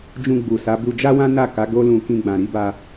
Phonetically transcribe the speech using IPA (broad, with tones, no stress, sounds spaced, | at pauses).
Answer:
d͡ʒ ũ˧ ɡ͡b u˨ s a˨˦ b u˧ d͡ʒ a˦ w ã˦ n a˦˨ k a˨˦ ɡ o˦ l ũ˧ k ĩ˧ ɡ͡b ã˨ ɾ i˧ b a˧